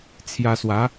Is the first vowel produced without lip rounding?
yes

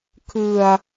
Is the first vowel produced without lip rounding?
yes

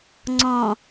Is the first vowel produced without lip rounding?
no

